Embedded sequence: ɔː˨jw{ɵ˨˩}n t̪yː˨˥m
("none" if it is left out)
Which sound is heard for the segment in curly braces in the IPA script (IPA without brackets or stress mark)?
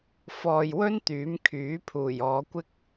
ɵ˥